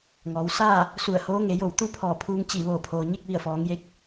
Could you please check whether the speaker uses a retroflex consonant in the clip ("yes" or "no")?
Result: no